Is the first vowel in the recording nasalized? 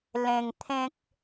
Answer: yes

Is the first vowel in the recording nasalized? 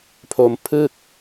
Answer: no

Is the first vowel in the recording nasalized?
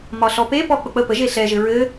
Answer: no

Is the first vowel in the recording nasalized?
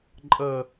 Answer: no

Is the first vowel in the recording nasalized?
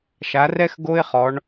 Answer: no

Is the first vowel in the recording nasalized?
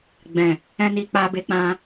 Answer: yes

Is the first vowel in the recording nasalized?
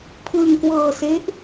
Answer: no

